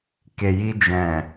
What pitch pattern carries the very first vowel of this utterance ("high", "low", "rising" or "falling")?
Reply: low